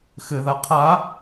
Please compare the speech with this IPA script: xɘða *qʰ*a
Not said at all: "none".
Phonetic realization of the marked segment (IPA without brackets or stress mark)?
qʰ